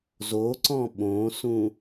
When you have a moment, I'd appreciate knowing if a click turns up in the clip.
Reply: yes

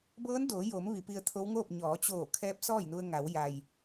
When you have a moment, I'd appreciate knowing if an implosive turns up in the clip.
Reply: no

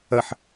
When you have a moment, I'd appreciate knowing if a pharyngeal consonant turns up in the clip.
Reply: yes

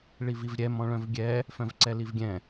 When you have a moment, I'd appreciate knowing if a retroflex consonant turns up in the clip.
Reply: yes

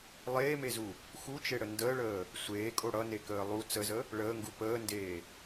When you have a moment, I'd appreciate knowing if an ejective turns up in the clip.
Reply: yes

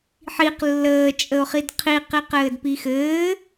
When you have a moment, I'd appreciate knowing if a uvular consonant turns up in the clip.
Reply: yes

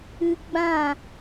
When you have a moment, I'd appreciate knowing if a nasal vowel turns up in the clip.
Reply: yes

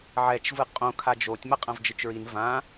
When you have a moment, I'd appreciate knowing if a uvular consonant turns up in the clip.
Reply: yes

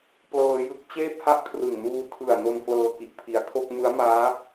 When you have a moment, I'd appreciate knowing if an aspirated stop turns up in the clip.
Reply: yes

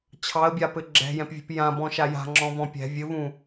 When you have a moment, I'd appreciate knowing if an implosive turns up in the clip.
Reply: no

